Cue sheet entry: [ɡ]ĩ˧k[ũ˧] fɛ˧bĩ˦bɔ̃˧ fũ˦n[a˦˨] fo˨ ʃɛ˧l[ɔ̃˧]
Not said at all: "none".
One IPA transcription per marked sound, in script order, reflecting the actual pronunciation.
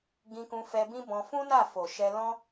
ɡ, ũ˧, a˦˨, ɔ̃˦

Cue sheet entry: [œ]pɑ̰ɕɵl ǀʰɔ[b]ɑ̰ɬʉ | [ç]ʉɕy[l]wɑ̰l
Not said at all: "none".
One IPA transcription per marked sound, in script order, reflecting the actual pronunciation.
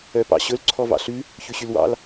œ, v, ç, l

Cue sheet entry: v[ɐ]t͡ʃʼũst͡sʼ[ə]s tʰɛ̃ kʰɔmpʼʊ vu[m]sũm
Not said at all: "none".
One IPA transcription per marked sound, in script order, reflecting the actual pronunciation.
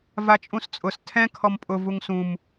a, ʊ, ŋ

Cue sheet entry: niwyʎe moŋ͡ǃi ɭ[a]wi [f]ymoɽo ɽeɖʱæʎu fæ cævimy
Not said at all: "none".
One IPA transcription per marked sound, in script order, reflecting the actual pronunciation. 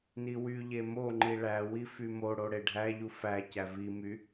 æ, f

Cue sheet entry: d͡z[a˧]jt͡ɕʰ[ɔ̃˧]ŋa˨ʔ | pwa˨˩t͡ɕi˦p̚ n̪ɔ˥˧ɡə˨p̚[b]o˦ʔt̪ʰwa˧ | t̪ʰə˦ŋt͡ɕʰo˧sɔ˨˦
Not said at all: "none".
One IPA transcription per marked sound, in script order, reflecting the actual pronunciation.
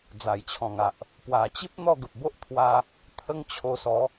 a˨˩, ɔ̃˨˩, b

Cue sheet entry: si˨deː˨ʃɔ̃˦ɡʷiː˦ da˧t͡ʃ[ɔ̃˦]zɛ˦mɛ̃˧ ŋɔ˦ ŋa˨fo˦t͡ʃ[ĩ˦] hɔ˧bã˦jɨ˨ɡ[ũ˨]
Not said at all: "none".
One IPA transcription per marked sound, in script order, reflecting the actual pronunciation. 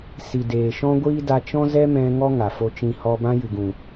ɔ̃˦, ĩ˦, ũ˨

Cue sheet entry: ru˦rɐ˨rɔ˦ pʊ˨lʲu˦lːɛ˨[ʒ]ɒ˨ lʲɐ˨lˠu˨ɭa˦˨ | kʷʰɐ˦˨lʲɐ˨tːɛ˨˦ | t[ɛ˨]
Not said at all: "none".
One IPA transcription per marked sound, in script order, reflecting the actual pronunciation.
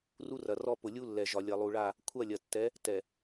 ʒ, ɛ˨

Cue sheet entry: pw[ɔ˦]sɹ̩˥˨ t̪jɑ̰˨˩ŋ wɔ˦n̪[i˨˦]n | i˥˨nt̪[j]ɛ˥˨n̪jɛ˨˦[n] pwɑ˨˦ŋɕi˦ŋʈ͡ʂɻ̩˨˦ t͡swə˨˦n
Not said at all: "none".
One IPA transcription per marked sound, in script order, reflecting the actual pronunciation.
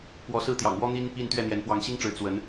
ɔ˨˦, i˦, ɥ, n

